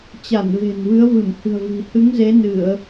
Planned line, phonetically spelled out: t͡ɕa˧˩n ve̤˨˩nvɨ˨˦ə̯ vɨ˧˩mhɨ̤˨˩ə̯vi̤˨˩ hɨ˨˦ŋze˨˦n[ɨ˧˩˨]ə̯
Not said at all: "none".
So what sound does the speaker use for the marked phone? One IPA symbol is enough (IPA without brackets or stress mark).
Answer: ɨ˧˩˨